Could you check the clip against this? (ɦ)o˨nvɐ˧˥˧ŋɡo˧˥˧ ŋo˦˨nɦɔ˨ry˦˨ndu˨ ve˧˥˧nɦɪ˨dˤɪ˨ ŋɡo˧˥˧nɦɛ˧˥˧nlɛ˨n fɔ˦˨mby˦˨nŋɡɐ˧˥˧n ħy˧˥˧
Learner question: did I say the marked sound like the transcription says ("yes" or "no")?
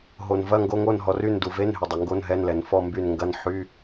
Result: yes